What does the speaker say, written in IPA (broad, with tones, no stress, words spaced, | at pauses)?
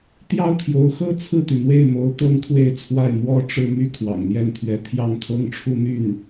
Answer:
t̪jɑ˥ʊ̯t̪ʰjo˧˥ʊ̯xɤ˥ t͡sʰɹ̩˥˩t̪y˩n̪we˥˩ɪ̯mo˧˥ʊ̯ t̪ɤ˥ŋkʰwe˥˧ɪ̯t͡sʰwa˥˩ɪ̯ mwɔ˥ʈ͡ʂɻ̩˥˧ my˥˩kʰwɑ̰˨˩ŋn̪jɛ˥˩n pʰɥɛ˧˥ t̪ʰjɑ˥˩ŋt̪ʰɤ˥ŋʈ͡ʂʰu˥˧n̪y˥˩n